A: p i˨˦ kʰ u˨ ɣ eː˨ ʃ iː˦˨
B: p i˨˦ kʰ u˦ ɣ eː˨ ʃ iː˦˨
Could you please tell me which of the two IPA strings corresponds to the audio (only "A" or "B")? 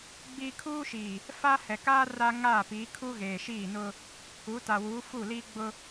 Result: B